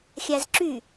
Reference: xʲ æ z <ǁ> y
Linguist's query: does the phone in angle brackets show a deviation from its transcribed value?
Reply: no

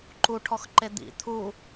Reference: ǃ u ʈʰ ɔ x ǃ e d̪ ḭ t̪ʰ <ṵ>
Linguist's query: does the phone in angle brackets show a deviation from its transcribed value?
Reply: yes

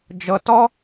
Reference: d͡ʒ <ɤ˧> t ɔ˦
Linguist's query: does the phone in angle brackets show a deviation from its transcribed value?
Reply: no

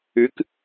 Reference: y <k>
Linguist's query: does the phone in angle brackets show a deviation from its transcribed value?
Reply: no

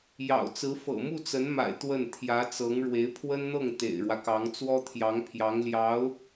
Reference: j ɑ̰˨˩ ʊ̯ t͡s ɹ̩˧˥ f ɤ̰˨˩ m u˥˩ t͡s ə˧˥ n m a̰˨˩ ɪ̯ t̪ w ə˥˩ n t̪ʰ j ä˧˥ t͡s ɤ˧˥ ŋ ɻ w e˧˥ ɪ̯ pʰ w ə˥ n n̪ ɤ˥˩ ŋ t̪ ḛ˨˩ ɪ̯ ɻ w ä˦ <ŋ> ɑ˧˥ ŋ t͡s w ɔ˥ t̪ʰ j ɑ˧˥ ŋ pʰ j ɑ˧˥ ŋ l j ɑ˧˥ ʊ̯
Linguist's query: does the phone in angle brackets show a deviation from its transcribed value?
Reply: yes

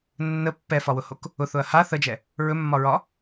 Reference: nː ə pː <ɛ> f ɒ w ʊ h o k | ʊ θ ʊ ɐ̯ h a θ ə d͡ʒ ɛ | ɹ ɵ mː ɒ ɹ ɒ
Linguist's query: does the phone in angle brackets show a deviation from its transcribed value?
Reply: no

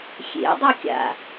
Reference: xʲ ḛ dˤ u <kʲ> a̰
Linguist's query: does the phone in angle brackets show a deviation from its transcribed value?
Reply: no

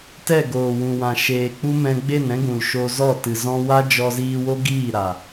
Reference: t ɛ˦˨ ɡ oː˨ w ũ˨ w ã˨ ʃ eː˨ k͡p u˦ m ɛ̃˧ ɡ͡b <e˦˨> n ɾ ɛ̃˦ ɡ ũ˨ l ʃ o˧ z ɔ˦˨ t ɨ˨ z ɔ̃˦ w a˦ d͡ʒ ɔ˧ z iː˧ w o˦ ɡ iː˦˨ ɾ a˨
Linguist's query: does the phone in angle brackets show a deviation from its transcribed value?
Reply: no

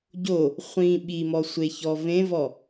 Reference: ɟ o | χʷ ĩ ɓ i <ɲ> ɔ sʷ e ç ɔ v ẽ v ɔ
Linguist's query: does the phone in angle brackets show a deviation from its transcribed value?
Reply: yes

